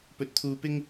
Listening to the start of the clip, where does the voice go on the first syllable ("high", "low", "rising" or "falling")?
rising